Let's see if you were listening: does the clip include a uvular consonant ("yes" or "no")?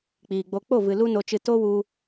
no